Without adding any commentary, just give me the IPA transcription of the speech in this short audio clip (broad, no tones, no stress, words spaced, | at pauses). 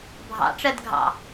bʱɑ̰ʈ͡ʂɜd ɡʱɑ̰